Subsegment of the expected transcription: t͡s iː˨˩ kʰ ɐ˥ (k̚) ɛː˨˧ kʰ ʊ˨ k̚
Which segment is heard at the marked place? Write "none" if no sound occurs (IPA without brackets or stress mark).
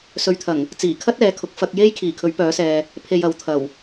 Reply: t̚